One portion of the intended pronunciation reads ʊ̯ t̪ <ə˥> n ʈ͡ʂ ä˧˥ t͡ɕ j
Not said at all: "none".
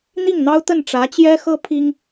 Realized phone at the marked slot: ə˥˩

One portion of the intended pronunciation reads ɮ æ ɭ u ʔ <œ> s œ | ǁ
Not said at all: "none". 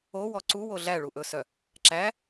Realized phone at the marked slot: ɵ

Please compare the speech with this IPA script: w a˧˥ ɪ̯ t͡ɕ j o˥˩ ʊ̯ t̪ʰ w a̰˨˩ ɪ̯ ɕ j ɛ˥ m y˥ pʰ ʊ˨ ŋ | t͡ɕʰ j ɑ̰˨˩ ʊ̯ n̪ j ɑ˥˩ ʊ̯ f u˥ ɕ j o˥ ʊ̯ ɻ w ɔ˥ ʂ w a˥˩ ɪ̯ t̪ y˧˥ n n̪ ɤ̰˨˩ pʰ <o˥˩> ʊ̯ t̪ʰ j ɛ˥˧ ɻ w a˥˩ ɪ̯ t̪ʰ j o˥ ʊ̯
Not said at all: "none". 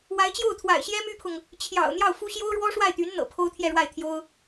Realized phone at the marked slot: o˥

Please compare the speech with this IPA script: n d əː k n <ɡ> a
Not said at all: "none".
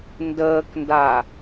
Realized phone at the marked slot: d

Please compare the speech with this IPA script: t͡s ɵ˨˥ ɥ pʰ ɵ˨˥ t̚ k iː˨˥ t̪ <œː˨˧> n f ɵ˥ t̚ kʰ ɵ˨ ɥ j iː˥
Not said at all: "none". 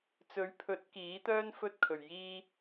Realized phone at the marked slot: œː˥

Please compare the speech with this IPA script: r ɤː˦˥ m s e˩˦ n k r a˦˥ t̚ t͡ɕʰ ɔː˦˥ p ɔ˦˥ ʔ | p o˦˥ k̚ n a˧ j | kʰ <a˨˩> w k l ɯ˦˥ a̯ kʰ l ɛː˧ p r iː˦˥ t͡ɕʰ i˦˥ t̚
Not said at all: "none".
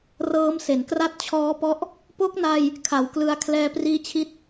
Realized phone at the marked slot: a˨˩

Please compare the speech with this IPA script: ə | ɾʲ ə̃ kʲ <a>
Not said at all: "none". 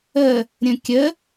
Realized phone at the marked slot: ə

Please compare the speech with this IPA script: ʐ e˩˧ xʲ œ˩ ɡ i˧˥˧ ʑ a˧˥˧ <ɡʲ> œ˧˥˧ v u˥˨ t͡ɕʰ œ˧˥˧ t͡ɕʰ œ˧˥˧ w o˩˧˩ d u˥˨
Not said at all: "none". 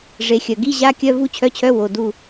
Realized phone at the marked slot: kʲ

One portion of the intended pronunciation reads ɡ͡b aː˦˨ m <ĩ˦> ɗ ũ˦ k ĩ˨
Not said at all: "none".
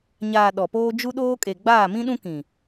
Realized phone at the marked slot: ĩ˦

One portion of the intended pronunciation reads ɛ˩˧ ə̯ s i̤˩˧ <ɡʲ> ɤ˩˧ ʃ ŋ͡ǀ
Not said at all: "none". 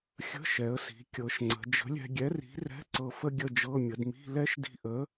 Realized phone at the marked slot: kʲ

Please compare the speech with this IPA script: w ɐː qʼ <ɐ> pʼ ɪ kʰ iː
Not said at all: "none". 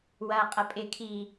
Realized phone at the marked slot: ɐ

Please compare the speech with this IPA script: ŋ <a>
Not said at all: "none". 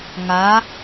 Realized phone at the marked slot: a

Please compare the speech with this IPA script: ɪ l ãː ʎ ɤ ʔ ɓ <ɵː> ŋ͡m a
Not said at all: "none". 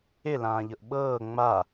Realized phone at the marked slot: ɤː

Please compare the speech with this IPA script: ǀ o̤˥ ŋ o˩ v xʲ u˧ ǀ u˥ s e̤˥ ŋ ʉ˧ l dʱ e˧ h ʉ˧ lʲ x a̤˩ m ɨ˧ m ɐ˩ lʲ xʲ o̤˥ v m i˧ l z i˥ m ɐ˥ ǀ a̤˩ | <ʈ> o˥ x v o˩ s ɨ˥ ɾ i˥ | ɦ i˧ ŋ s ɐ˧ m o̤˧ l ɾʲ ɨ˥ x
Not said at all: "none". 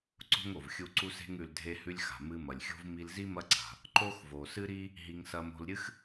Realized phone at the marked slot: ǃ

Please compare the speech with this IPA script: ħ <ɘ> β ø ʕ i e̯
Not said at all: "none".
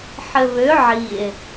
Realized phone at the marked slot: ɘ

